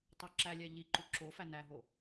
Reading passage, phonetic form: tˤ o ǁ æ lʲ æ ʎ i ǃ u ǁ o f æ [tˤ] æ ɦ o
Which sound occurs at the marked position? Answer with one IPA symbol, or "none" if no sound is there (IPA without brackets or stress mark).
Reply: n